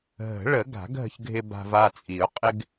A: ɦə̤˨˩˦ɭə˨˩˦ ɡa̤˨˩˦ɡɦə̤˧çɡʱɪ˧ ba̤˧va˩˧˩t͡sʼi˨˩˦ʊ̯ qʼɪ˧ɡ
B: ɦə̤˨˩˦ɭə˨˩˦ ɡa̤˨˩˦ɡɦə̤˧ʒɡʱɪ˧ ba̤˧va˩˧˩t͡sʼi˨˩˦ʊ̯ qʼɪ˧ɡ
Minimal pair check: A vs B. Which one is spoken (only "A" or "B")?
A